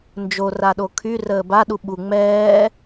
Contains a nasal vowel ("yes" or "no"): no